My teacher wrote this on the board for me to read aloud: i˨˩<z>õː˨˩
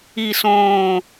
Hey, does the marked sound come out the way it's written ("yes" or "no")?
no